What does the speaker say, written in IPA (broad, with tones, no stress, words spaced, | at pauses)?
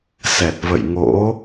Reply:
sɛ˨˩t̚və̰˧˨j ŋo̰˧˥